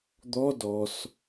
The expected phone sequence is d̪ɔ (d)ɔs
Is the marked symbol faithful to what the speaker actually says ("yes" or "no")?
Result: yes